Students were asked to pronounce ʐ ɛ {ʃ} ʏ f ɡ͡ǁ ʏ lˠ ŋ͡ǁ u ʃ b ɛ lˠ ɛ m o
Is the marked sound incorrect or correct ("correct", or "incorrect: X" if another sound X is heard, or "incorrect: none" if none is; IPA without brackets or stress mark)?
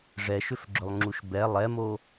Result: correct